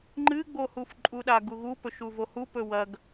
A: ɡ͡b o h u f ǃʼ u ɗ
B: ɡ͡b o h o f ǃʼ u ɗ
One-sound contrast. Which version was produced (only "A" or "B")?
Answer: A